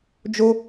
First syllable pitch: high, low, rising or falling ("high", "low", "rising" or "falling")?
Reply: high